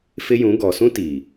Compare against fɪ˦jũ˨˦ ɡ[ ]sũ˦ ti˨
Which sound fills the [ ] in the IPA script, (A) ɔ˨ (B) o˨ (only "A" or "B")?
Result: A